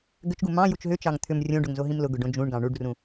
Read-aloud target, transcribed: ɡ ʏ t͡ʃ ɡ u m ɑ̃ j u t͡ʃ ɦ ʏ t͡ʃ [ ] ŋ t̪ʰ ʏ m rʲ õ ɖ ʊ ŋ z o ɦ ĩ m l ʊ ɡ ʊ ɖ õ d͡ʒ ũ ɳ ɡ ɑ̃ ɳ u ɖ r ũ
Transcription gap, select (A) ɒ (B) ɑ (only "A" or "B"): B